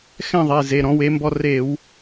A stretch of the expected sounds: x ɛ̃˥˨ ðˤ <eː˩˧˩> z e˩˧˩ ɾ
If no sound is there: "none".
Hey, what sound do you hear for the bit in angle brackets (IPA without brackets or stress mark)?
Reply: e˩˧˩